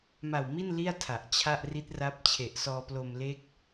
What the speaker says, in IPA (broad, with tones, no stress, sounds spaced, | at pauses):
m a˨˩ w m i˥˩ n l i˥˩ a̯ tʰ a˨˩ ʔ t͡ɕʰ a˥˩ ʔ r i˦˥ t̚ r a˦˥ p̚ t͡ɕʰ e˨˩ ʔ s ɔː˧ p l o˧ m l e˦˥ k̚